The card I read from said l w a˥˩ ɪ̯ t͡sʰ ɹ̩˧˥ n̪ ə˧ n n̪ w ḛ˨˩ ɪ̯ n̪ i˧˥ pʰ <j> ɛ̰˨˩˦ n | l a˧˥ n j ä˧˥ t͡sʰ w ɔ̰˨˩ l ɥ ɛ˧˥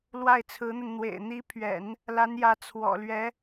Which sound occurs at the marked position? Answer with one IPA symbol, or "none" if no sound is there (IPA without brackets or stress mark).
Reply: ɥ